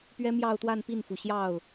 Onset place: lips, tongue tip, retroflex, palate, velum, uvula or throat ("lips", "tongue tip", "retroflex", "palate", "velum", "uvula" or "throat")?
lips